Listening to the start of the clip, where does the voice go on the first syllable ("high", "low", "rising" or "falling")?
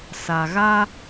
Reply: low